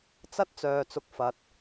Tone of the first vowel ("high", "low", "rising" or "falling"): high